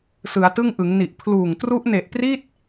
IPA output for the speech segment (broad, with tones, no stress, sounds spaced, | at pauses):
s ɯ˩˦ a̯ t ɯ˥˩ ŋ ʔ ɯ˩˦ ŋ n i˨˩ ʔ pʰ l uː˨˩ ŋ t r u˦˥ ʔ n e˨˩ ʔ p r i˥˩ t̚